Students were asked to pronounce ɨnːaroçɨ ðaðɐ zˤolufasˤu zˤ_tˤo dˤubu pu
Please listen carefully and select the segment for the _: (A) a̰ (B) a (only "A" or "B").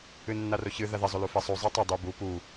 B